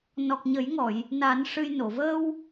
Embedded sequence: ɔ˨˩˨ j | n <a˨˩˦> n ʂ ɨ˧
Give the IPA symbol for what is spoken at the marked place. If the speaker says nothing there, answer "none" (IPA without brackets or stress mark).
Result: a˨˩˦